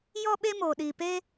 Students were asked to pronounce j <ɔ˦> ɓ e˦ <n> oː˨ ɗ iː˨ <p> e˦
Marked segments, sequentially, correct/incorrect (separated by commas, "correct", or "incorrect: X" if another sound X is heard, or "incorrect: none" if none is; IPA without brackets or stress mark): correct, incorrect: m, correct